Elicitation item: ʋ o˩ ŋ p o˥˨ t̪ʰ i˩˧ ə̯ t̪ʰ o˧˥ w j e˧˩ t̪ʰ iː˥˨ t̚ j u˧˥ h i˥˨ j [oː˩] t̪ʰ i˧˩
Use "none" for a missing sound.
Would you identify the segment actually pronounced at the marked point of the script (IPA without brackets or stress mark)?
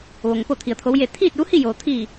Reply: oː˩